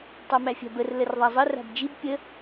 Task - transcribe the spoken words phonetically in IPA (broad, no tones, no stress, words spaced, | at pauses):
tˤamæfʲæ̤bər lərðˤazˤə ra̤bd͡ʒib pʲə